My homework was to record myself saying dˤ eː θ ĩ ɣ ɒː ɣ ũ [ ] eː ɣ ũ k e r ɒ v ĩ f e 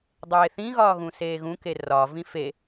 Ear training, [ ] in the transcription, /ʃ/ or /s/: s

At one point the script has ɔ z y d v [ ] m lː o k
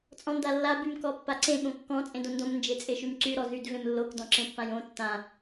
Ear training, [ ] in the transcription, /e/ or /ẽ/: ẽ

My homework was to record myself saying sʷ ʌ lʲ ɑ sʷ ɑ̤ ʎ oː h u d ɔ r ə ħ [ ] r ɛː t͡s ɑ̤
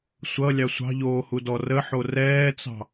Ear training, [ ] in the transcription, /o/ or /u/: o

